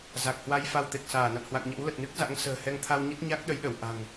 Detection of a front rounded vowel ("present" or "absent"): absent